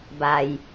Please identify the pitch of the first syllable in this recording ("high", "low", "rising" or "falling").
low